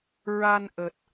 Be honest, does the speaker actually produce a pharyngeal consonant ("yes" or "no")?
no